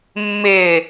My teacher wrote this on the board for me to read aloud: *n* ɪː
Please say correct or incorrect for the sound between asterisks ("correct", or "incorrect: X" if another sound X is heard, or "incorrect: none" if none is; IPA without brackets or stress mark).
incorrect: mː